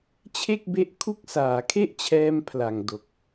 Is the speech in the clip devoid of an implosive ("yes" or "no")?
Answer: yes